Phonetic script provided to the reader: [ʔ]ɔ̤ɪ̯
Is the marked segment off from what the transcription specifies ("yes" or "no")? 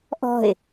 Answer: no